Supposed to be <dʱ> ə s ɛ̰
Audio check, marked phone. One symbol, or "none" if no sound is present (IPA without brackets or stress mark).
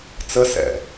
t͡s